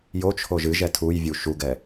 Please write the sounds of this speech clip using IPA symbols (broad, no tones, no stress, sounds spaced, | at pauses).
j o t͡ʃʰ o ʒ ɨ ʒ ɛ tʰ u j vʲ u ʃ u ɡ ɛ